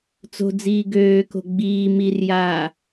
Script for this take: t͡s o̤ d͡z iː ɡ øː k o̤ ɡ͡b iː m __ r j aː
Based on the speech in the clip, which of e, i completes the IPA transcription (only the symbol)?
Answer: i